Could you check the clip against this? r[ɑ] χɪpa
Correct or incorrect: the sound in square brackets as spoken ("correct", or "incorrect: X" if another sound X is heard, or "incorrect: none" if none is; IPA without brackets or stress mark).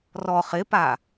incorrect: ɔ